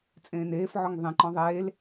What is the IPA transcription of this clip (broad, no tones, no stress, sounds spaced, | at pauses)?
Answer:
t͡sʼ ẽː n eː f ʕ ɔ ŋ ðˤ ẽ ǃ ɔ̃ ðˤ eː l